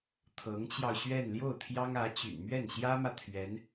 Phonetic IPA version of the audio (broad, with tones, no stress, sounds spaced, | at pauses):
t̪ʰ ɤ˧˥ ŋ t͡ɕ j ɑ˧ ʊ̯ ɕ ɥ ɛ˥˧ n l j o˥˩ ʊ̯ t̪ʰ j ɑ˥ ŋ ä˧˥ t͡ɕ y̰˨˩ n m ɥ ɛ˥˩ n ɕ j ä˥ m ä˨ t̪ʰ ɥ ɛ˧˥ n